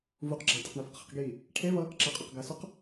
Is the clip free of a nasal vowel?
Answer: yes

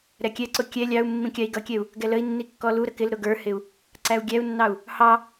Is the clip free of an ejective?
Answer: yes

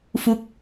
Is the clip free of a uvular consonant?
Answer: yes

